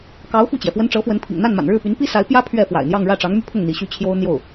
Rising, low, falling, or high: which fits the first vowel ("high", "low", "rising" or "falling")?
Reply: rising